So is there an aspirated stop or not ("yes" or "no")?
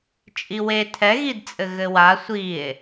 yes